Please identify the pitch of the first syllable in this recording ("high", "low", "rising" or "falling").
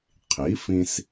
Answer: rising